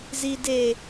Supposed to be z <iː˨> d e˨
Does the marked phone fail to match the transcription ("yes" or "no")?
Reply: no